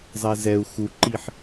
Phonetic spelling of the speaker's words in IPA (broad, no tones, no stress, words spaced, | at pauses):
zˤɛzɛu̯ xuǃiħ